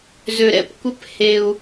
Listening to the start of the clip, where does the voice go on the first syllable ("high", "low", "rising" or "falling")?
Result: high